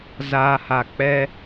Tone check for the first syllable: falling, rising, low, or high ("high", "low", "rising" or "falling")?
low